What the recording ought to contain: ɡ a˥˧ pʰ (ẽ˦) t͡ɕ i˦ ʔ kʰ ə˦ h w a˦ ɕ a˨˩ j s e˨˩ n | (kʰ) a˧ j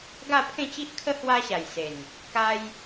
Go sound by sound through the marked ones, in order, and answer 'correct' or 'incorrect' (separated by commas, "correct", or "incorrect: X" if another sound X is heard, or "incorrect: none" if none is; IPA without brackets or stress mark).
incorrect: ẽ˥˧, incorrect: k